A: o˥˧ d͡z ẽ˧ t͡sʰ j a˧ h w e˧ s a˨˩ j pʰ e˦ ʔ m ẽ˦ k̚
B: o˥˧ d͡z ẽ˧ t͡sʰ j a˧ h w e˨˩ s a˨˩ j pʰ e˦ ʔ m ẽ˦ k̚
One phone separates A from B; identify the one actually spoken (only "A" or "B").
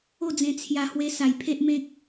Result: A